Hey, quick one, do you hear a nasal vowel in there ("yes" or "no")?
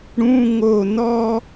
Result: yes